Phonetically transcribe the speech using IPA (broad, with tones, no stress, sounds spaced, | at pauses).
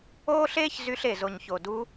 oː˦ ɬ eː˦ ç z y˧ ɬ e˨ z o˨ ɲ ç o˨ d u˧